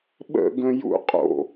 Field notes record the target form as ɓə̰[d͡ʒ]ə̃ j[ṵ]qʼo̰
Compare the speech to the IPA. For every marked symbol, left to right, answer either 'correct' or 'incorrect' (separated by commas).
incorrect, correct